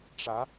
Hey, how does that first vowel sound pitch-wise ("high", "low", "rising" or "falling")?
rising